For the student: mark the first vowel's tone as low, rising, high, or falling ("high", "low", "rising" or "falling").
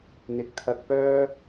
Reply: rising